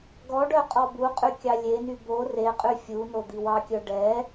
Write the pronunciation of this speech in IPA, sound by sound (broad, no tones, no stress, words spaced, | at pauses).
ɡɔɖœ qʼɔbuqʼy kʲɑlʲeny bo reqʼy fʲu nod̪iwɑkʲœ ɖɛ